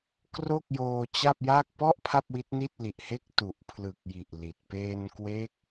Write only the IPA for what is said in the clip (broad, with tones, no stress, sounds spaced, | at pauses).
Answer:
k r o˥˩ k̚ j oː˧ t͡ɕ a˥˩ p̚ j a˥˩ k̚ p ɔ˥˩ ʔ pʰ a˥˩ p̚ w i˦˥ t̚ n i˥˩ t̚ l i˨˩ ʔ h e˥˩ k̚ t u˨˩ ʔ pʰ l ɯ˨˩ k̚ j i˨˩ ʔ l i˨˩ t̚ p eː˧ n k w e˦˥ k̚